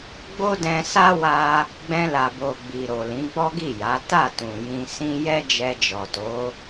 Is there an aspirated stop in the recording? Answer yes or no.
no